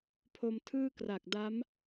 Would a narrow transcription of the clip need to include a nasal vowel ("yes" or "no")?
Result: no